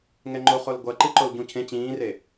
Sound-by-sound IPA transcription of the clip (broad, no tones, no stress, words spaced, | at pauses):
ŋɛŋ͡ǃoχol ɡʷʌ ǃiǃolɟũcʰẽ t͡ɕĩːre